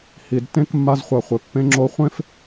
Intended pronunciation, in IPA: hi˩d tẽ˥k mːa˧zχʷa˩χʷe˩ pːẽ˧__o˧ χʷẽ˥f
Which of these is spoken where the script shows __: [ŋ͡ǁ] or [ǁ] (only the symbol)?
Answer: ŋ͡ǁ